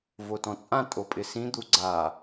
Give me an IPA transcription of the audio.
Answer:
v o t ɔ̃ t͡sʼ ã tʼ o pʼ ɪ s ĩ d̪ u ɡ͡ǀ a

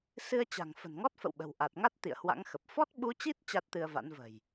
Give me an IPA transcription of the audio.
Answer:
s ɨ˧ ə̯ t͡ɕ a̤˨˩ ŋ f ə̤˨˩ n ŋ ɔ˦˥ t̚ f ə̰˧˨ w ɓ ə̤˨˩ w ʔ a˨˩ t̚ ŋ a˦˥ t̚ t̪ ḭ˧˨ ə̯ h w a̰˧˥ ŋ x ə˨˩ p̚ f ɔ˦˥ t̚ ɓ u˨˦ t͡ɕ i˦˥ t̚ t͡ɕ a˦˥ t̚ t̪ ɨ˧ ə̯ v a̰˧˥ n v ə̤˨˩ j

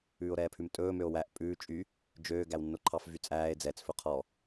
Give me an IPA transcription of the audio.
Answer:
ʉː o̯ ɾ ɛː pʰ ʉ m tʼ ɵː m ø o̯ w æ ʔ pʼ ʉː t͡ʃʼ y | d͡ʒ øː ɡ æ w nː o ǃʰ ɑ f v y t͡sʼ æː e̯ d͡z ɛ t͡s f ɵ qʰ ɔ

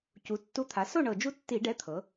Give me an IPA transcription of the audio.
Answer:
c u˩˧ tː u˨˥ t̪ʰ a˩˧ s o˥˨ ɳ ɤ˨˩ d͡ʒ u˦ tː i˧˩˧ ɖ ɛ˨˥ t̪ʰ ɤ˩˧

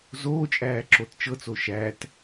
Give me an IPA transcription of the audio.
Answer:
z oː t͡ʃʼ æː ǁ o t t͡ʃ ɤ t͡s o ʃ æ t

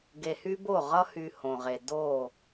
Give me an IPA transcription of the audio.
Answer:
ɡ e˨ h y˦ b o˦˨ ʁ ʌ˦ h y˨ h õ˨ ʁ e˨ d o˦˨

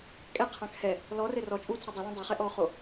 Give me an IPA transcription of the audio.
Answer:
kʼ ɛ qʰ ã kʰ ɛ | l ɔ r ɘ r ɔ t͡ʃʼ u tʰ ɐ dˤ ɛ l ɛ̃ dˤ ɛ χ ɛ ʔ ɔ χ o

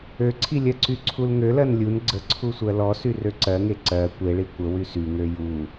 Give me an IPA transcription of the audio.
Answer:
ø ǀʰ i lʲ ɜ ǀ y ǀʰ u l ŋ ø l ɜ n lʲ u n ɡ͡ǀ ə ǀʰ u sʷ ɜ l ɔ s y r ø ǀ ɜ ŋ e ǀ ɜ kʷ e ɭ i kʷ ə w y s y ŋ ø j u

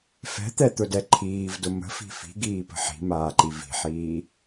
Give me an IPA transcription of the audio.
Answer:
f ɛ̤ t̪ ɛ t̪ ʊ d ɛ ǃʰ iː v d ʊ m ə̤ f i̤ f i̤ ɡ iː p ə̤ ħ i̤ m aː ǃ i v i̤ ħ iː

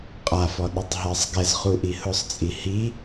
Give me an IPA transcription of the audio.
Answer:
qʼ a f ɔ ɗ ʊ tˤ ɦ ɛ sˤ ɡ ɛ z χ u ʔ i h ʊ sˤ t͡sʼ i h i

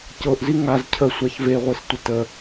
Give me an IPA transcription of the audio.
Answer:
c ɤ ʔ z i ŋ a z cʰ ə sʷ a ç v e ʁʷ e s tʷ ə t ə

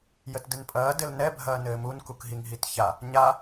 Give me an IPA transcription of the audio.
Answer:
j ə t d ɘ n pʼ ɐː d ɘ l n ɛ bʱ ɐː n ɘː m u n k u k ɦ i ŋ ɦ i t ç a | ɲ a

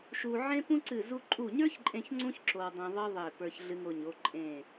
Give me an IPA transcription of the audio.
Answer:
ʃ u˧ ʕ ẽ˥ p ũ˥ ǀ ɨ˧˩ z u˧ ǃʼ u˧˩ ɲ ə˞˥ ç ǃʼ ẽ˧ ç ŋ͡ǀ ũ˥ ç ǁ o˧ w dˤ ẽ˧ ðˤ ɨ˥ ðˤ e˧˩ p ə˞˧ ç ɮ ɨ˧ ŋ o˧˩ ɲ o˥˨ ǃʼ ẽ˧˩

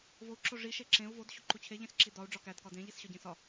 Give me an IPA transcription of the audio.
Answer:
v o u̯ ǁ o ʐ i ʃ e ǁ ẽ u̯ v o d ɕ o ǃ u t͡ɕʰ e ʎ ẽ s ǁ i d ɒ u̯ ɖ͡ʐ ɒ k æ d k ɒ d ẽ ʎ i s ɕ ɒ ɟ ẽ s ɒ

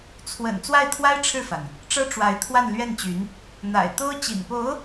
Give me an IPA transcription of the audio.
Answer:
t͡sʰ w ə̰˨˩ n t͡s w a˥˩ ɪ̯ t̪ʰ w a˥ ɪ̯ ʈ͡ʂʰ ɻ̩˥˩ f a˩ n | ʈ͡ʂ ɤ˥ ʈ͡ʂ w a˧˥ ɪ̯ t̪ʰ w a˥˧ n l ɥ ɛ˥˩ n t͡ɕ y˧˥ n | n̪ a̰˨˩ ɪ̯ t̪ o˥ ʊ̯ t͡ɕ ḭ˨˩ n p o˧˥ ʊ̯

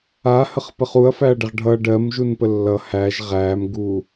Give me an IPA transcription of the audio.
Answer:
a h ə χ p ə χ u ɐ̯ f æ ɐ̯ ɖ ə ʁ ɖʱ ʌ ɖ ɜ m ʒ u n p ə lː ʌ h æ ʒ ʁ æ m ɡ u

